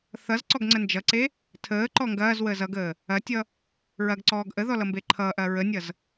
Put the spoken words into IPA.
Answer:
θʌz ǀɔɡŋ͡ǀənd͡ʒʌǀe | tʰəː ǃɔŋɡɐːzwəːz ʌɡəː | ɐtʲʌ | ɹɐɡǀɔːɡ ʔəðɔ lʌmbeǃʰʌːʔɐː ɹənʲʌz

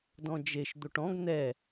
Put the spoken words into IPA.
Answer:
dɔ̃d͡ʒeʃ d̪oʈɔ̃ɡ n̪ɛ

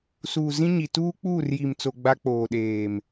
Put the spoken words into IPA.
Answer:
suː˨zĩ˦ɲi˨ tuː˦k͡puː˦˨rji˨mt͡so˨ ɡ͡ba˦k͡poː˨ɗeː˨m

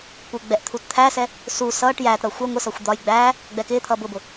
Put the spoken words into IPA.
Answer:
kʷɪːɡ͡bɛʔt̪ʰut t̪ʰæsɛ | su sʌːʈ jæːtɾʌː xʷɛ ŋʷɪsɒxʷ d̪ɒj ɡ͡bæː | ɡ͡bɛkɪːt̪ʰʌː bʊbʊ

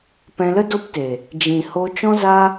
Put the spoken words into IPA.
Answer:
pɛ̃˧lə˦do˦pteː˨ | d͡ʒĩ˨ho˧ t͡ʃɔ̃˦zaː˦

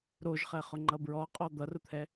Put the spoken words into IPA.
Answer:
ɾoʒχɛχʊ ŋ͡ǃʌbɹɔqʼɔ d̪ʌrʊt̪ʰɛ

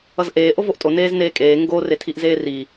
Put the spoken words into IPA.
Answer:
ʌzʔeː ʔovoʔtʼo neːzneːkʼeː ŋɡo retʰiʔzeːri

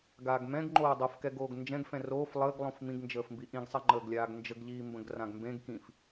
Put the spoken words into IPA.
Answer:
ɡaːɡmɛ̃ɡ ŋ͡ǃoːdˤofkɛɡoːɡ nd͡ʒɛ̃ɡfɛ̃ roːf lˠəːɡlˠõf mĩɡnd͡ʒəːfmbi ʔĩɡsˤɛŋ͡ǃəːɡlʲaːɡ nd͡ʒəɡʎiːmbə̃ɡ rãɡmbẽɡ kĩf

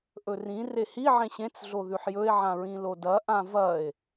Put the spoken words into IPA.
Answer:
ʔɵrĩ rehi ʕẽɕẽt͡s ɮoðʉħjɵe̯ ʕãɹĩlodɐ ʔãvɐe̯

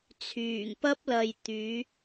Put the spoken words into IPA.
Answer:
t͡sʰyː˨˩ŋpɐ˥p̚lɐ˨j t̪yː˨˥

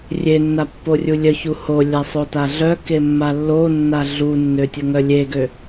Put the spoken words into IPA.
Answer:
rʲenːapːo rʲulʲœ çuho lʲasˤotaɮœ kemːalːonːa ɮunːø tʲəŋœlʲeɡø

